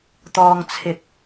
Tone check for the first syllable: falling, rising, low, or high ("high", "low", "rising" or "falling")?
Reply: low